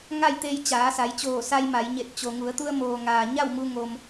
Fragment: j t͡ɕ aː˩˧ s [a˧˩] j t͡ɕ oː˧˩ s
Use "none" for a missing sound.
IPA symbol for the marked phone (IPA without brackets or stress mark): a˩˧